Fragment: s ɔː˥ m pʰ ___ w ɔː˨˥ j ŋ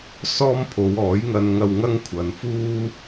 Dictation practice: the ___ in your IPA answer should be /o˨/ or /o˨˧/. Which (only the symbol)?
o˨˧